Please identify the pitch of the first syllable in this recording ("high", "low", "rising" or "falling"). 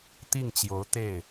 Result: falling